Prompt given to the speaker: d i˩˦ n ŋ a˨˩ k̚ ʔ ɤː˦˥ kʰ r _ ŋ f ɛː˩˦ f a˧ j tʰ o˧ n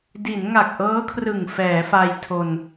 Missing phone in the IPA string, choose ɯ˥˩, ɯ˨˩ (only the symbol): ɯ˨˩